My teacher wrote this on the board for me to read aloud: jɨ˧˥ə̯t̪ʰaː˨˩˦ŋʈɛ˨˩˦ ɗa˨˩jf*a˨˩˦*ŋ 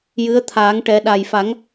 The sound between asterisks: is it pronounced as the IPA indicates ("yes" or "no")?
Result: yes